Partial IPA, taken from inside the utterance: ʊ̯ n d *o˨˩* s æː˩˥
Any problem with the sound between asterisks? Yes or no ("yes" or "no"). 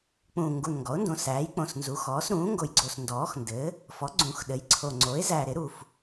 yes